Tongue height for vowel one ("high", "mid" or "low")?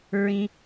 high